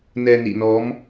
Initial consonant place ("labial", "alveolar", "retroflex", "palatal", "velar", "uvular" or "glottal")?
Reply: alveolar